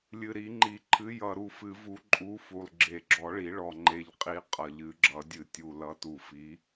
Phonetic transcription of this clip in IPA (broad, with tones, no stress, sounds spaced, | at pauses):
lʲ ɨ˨˩ ɾ i˨˩˦ ŋ͡ǃ i˨˩˦ ǃʰ ɨ˨˥ j ʌ˨˩ ɾ u˨˩ f ɨ˨˩˦ v u˨˥ ǃʼ u˨˥ f u˨˩ lˠ ɡ͡ǁ e˨˩ ɡ͡ǁ ɔ˨˩˦ ɭ i˨˩˦ ɭ ɔ˨˩ ŋ͡ǃ e˨˩ ʎ qʼ i˨˥ qʼ ʌ˨˩ ʎ ɨ˨˩˦ ɡ͡ǁ ʌ˨˩˦ dʲ ɨ˨˩ tʲ u˨˩ l ʌ˨˥ t u˨˩ f i˨˥